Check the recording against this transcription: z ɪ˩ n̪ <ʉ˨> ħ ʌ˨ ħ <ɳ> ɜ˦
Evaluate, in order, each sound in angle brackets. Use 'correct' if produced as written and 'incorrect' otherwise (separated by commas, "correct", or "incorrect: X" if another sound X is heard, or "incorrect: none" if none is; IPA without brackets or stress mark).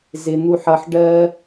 incorrect: u˨, incorrect: ɖ